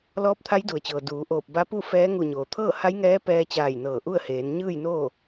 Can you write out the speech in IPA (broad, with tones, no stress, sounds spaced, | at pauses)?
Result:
l ɔː˧˥ p̚ t̪ʰ a˧˥ j d u˩ ə̯ t͡ɕ ɤː˩ d uː˩˧ ʔ oː˧˩ p̚ b a˧˥ p u˥˨ f ɛː˧˥ ŋ u˧˩ ɲ oː˩ t̪ʰ ɤː˥˨ h a˧˥ j ŋ ɛː˧˥ p ɛː˧ t͡ɕ aː˧˩ j n ɤː˧˩ ʔ u˥˨ ə̯ h eː˩˧ n ɲ ɯː˥˨ j n oː˥˨